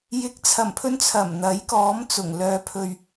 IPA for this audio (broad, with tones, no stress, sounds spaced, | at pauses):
j ɪ˨˥ k̚ t͡sʰ ɐ˨˩ m pʰ ɵ˧ n t͡sʰ ɐ˨˩ m n̪ ɐ˨˥ j k ɔː˨˥ m t͡s ʊ˨˩ ŋ l œː˨˧ pʰ ɵ˨ ɥ